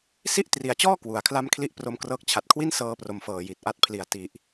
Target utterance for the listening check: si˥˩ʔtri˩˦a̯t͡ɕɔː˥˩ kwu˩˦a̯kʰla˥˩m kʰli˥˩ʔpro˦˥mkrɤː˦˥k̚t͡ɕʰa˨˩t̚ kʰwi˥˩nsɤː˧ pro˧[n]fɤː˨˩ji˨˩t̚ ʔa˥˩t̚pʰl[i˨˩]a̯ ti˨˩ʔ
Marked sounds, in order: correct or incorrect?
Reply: incorrect, correct

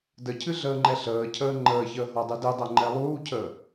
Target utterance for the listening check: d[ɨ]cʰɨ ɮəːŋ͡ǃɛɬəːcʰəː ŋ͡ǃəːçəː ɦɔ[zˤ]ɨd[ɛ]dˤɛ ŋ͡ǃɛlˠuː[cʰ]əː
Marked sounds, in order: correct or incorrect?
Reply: incorrect, incorrect, incorrect, correct

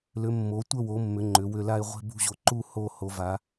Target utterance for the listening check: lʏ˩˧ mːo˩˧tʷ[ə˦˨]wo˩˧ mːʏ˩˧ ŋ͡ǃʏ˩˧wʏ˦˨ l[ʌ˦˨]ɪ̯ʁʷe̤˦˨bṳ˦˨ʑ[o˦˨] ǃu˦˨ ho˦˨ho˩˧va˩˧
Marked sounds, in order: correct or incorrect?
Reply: correct, incorrect, incorrect

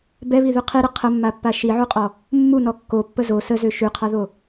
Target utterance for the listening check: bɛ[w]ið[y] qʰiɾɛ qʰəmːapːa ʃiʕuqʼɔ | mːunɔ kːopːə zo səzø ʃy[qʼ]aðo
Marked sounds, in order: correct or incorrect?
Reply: incorrect, correct, incorrect

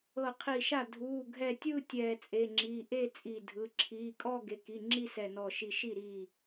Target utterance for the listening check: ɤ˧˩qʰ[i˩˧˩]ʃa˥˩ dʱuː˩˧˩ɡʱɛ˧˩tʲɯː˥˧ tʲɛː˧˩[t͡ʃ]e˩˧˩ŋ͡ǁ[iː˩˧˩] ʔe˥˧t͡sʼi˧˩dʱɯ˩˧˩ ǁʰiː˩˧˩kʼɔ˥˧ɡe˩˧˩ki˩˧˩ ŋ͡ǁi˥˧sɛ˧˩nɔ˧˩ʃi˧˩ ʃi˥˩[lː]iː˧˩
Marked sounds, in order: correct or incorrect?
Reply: incorrect, incorrect, correct, incorrect

